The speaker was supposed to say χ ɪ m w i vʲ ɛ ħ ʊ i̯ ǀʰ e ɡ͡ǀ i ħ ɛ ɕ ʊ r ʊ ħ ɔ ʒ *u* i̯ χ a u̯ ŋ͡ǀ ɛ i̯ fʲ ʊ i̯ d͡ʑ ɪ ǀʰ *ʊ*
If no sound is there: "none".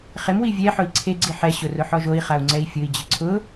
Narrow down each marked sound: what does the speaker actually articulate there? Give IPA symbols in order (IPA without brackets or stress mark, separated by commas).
o, ʊ